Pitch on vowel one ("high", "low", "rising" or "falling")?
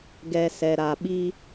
low